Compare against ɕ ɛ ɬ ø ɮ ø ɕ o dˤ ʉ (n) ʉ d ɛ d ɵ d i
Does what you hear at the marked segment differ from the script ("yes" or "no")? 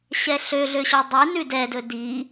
no